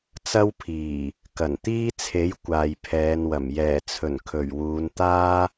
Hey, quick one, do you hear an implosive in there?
no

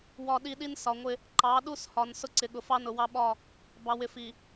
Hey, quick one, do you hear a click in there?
yes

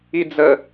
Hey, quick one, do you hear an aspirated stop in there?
no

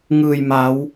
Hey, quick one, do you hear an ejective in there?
no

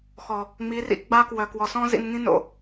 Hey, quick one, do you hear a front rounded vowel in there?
yes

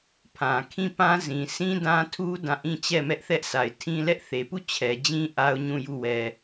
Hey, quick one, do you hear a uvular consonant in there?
no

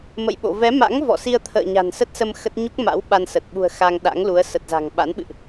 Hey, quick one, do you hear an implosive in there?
yes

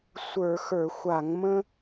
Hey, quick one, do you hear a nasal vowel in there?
yes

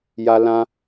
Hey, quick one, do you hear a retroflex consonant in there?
no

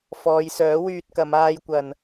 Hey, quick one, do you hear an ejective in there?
no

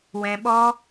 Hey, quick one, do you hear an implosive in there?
yes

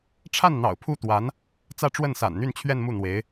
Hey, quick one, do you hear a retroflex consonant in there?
yes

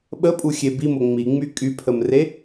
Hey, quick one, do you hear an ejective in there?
yes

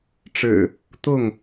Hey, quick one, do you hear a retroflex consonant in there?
yes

